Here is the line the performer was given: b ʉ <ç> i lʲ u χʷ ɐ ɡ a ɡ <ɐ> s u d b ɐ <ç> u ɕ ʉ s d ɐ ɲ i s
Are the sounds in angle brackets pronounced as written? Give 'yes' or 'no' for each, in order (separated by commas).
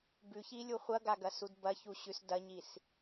yes, yes, yes